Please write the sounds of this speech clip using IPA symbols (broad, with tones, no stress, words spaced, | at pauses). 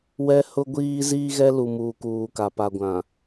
wɛ˦ hʊ˦ ɡʷiː˦ ziː˦ɣɛ˦lu˨muː˨ kuː˨ka˨ pa˨ɡʷã˨